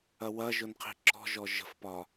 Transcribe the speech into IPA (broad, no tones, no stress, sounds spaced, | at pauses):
ɐ w ɐ ʒ ʊ n qʰ i̤ ǁ ɔ̤ ʒ ɔ ʒ ə̤ f p ɒ